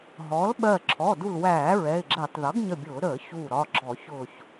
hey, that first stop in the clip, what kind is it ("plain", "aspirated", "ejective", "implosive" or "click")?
implosive